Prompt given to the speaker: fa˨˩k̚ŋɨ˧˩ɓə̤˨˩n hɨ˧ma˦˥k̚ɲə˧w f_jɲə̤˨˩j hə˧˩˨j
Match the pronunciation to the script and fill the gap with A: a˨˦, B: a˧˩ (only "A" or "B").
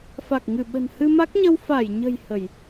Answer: B